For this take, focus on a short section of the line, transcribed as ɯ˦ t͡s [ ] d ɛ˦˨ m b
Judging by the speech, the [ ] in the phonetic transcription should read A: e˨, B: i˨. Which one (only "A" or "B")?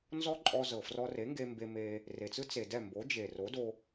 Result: A